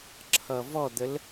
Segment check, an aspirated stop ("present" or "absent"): present